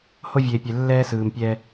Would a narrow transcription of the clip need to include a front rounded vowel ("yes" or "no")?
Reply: no